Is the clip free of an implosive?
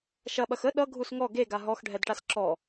no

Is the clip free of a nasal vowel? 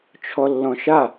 no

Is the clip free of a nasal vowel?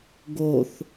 yes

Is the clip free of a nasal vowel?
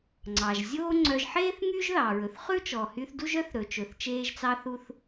yes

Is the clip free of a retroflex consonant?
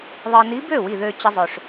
no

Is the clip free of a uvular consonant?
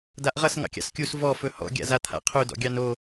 no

